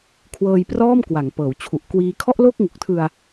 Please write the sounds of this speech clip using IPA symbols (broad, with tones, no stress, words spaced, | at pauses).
kʰwɤː˧jprɔː˥˩mkwa˩˦ŋpɤː˩˦w t͡ɕʰu˨˩ʔkwiː˧ kʰɔ˥˩ʔ lo˥˩k̚ŋu˨˩k̚ tʰɯ˧a̯